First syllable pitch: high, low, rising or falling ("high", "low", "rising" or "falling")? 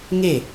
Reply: falling